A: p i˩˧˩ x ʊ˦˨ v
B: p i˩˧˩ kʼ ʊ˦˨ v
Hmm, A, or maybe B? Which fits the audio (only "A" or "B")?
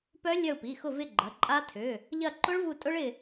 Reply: A